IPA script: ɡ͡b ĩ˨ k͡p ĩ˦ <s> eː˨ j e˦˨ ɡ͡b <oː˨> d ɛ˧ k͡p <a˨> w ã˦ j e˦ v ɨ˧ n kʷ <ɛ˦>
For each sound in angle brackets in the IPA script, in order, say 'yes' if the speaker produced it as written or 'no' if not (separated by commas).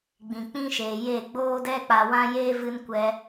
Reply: no, no, yes, no